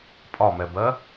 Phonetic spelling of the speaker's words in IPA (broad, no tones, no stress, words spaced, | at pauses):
pʼɒmɛbɜ